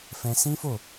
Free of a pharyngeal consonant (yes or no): yes